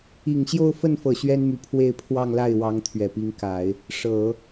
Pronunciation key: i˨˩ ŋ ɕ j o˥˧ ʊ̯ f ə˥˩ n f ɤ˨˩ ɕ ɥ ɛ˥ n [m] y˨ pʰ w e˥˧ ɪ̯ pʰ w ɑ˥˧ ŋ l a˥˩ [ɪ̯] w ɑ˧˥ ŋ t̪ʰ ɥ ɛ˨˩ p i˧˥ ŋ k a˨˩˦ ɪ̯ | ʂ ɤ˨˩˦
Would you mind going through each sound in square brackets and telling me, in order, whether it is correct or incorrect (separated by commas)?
correct, correct